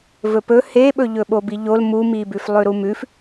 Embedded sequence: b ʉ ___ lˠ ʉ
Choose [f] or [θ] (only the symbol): f